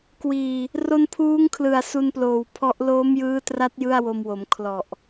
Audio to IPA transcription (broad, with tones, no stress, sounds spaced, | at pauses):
k w iː˨˩ | r o˧ n pʰ uː˦˥ ŋ kʰ l ɯ˨˩ a̯ s u˧ n p l oː˨˩ w pʰ ɔ˦˥ ʔ l oː˦˥ m j ɯː˦˥ t r a˦˥ t̚ j ɯ˥˩ a̯ w o˧ m w o˩˦ m kʰ l ɔ˨˩ ʔ